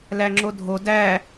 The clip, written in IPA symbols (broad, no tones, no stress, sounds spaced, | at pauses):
l æ ŋ͡ǁ o dʱ o d æ